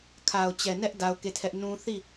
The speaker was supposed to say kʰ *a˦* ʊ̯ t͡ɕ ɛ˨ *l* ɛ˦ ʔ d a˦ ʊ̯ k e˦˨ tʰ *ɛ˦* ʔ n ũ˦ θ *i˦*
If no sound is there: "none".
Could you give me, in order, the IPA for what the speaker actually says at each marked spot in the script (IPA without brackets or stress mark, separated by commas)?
a˨, n, ɛ˦, i˦˨